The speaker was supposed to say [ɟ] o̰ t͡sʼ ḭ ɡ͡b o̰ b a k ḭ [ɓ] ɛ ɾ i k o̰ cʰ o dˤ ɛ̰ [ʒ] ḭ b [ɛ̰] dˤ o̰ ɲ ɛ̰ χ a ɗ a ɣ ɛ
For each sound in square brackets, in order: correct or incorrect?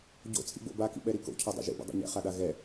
correct, correct, correct, correct

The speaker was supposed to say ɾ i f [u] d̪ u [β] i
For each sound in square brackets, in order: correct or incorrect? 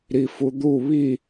correct, correct

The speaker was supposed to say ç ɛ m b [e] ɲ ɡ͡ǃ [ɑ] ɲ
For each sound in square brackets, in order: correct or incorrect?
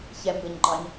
incorrect: ɘ, correct

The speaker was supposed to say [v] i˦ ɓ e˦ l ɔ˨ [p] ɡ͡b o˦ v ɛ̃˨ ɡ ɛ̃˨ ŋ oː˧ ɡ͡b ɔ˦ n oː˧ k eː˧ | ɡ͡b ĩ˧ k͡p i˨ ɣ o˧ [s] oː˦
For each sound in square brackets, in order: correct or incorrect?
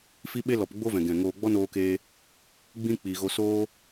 incorrect: f, correct, correct

